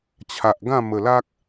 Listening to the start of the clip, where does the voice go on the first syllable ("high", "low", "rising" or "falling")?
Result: low